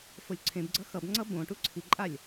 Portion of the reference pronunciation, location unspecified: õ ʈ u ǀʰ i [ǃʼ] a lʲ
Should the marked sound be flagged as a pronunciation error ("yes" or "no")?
no